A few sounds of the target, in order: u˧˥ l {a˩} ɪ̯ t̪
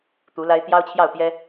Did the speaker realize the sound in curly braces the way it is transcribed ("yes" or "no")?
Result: no